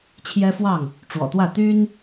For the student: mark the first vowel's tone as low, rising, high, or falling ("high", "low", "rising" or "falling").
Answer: high